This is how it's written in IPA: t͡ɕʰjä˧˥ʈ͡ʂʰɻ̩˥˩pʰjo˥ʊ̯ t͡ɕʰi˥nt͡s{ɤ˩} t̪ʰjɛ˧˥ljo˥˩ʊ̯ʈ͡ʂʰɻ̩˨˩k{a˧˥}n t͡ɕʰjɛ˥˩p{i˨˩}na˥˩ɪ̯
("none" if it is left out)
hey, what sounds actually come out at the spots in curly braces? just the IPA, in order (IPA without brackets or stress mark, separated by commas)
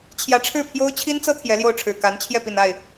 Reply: ɤ˥, a˧˥, i˨˩